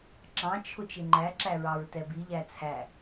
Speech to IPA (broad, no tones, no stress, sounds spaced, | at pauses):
ǁ ɑ̃ t͡ʃʰ ʊ t͡ʃ ɪ ŋ͡ǃ æ ǁ æ ɹ ɑ ɹ t ɛ b i ʎ æ t͡sʰ æ